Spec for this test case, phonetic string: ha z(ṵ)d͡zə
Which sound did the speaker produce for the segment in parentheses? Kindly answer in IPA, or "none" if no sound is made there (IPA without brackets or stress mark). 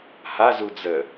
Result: u